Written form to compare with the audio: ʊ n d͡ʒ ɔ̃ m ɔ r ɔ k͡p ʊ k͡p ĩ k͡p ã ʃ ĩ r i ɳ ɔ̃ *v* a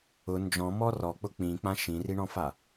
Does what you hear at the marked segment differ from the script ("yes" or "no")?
yes